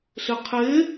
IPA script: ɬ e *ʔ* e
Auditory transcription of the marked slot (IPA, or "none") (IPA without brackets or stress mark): qʰ